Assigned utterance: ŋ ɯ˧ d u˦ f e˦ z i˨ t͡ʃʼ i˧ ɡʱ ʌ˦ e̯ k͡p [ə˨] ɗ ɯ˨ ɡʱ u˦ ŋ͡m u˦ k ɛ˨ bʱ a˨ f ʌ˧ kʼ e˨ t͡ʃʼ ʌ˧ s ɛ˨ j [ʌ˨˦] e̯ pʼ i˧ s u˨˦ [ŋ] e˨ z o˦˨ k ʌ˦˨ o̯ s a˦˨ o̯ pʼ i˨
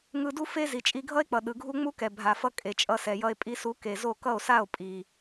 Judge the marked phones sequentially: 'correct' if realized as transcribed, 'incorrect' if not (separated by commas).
incorrect, incorrect, incorrect